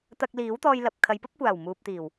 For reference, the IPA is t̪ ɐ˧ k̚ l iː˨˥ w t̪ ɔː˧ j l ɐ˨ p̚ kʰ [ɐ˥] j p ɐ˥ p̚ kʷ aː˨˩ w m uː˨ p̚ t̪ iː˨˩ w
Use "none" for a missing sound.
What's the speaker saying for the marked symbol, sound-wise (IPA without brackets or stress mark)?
ɐ˨˧